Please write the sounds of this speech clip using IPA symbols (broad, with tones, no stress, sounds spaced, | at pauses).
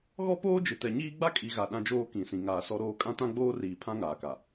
ɣ ɔ˦ p oː˦ d͡ʒ ɪ˨ t ɛ˨ ɲ iː˦ ɡ͡b a˦ kʼ i˨ ɣ a˨ ɗ ã˦ d͡ʒ oː˦ k ĩ˨ s ĩ˨ ŋ aː˨ s ɔ˦ ɾ oː˦ kʼ ã˦ t ã˦ ɡ͡b oː˦ r iː˨ pʰ ã˦ ŋ aː˨ k a˨